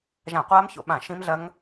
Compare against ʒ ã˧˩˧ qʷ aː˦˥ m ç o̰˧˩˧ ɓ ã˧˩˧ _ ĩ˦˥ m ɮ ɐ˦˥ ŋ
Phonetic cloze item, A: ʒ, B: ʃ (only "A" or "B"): B